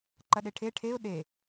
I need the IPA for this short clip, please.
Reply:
ǃ ɐ ɗ e ʈʰ e ʈʰ e ʊ̯ ɗ e

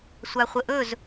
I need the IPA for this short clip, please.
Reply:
sʷ a χʷ ə ʔ ɵ z

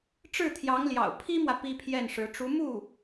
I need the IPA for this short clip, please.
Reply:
ʈ͡ʂ ɻ̩˥˩ t̪ʰ j ɑ˧˥ ŋ l j ɑ̰˨˩ ʊ̯ pʰ i˥ m w ä˨ p i˥ pʰ j ɛ˥˩ n ʂ ɻ̩˧˥ ʈ͡ʂ u˧˥ m u˥˩

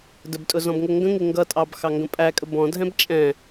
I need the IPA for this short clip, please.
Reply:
d ə b tʼ ʊ z ɔ̃ b ŋ ʊ ŋ ɡ ə̃ ŋ ɪ ŋ ɡ ʌ tʼ ɑ b x ɑ ŋ ɡ ə̃ pʼ æ kʼ ə b ɔ̃ dʱ ɛ̃ b t͡ʃʼ ɛ̃

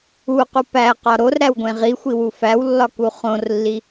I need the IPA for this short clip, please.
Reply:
u q u p æ q ɒ ɾ o r ɾ æ w ɡʷ ẽ ʁ i xʷ i w u f æ w lː ɒ k u χ õ r lː i

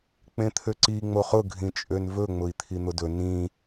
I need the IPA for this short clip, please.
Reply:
k͡p ẽ t̪ʰ ø ǀ i ŋ͡m o χ ʊ ɡʱ ĩ t͡ʃʼ ø n v ɵ ŋ͡m ʊ i̯ t̪ʰ i n̪ ʊ d ɵ n ĩ

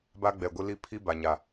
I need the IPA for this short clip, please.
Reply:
b a˦ ɡ͡b ɛ˨ ɡʷ ɪ˦ l i˦ pʰ i˦ b a˨ ɲ a˨

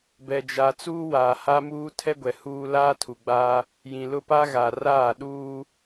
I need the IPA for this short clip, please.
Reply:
b ɛ˨ d͡ʒ a˨ t͡s uː˦ w aː˨ h a˦ m uː˦ tʰ ɛ˦ ɡʷ ɛ˨ h uː˦ l aː˦ tʰ u˨ ɡ͡b aː˦ | j ĩ˨ l ʊ˦ p a˦ ɣ a˨ r aː˦˨ ɗ uː˦

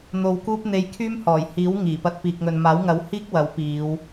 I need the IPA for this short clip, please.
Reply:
n̪ o˧ w k uː˥ p̚ n̪ e˧ j kʰ yː˥ m h ɔː˨˩ j h iː˨˥ w ŋ iː˨˩ p ɐ˧ t̚ p iː˨ k̚ ŋ ɵ˨ n m aː˨˥ w ŋ ɐ˨˥ w h iː˥ k̚ w ɐ˨˥ w p iː˨˧ w

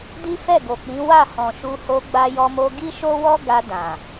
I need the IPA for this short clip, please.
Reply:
d i˦ f ɛ˦˨ ɡ o˨ k͡p ĩ˨˦ w a˦˨ h ɔ̃˨ ʃ u˧ h o˧ ɡ͡b a˧ j ɔ˧ m o˧ ɡ i˦ ʃ o˦ w ɔ˦ ɡ a˧ d ã˨

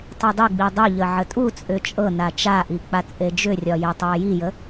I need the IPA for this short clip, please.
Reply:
tˤ i dˤ i ɡ͡b i dˤ ʏ ʎ ə ʕ ə tʼ u t͡sʼ ʏ t͡ʃʼ ɤ n a t͡ʃ a ʔ i k͡p a t͡sʼ e d͡ʒ ʏ rʲ ɒ j e tˤ a j i j ə

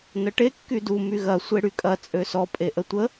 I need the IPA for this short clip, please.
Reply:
n ə ʈ e kː y d u m y ɣ ɐ sʷ e ɽ y kʼ ɐ t͡sʼ ø s ɔ pʼ e ʔ ə tʷ ə

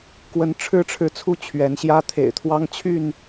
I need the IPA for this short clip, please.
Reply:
k w ə˦ n ʈ͡ʂʰ ɻ̩˦ ʈ͡ʂʰ ɻ̩˨ t͡sʰ u˦ t͡ɕʰ ɥ ɛ˨˦ n ɕ j ä˦ t̪ʰ ḛ˨˩ ɪ̯ t̪ʰ w ɑ˦ ŋ t͡ɕʰ y˥˨ n

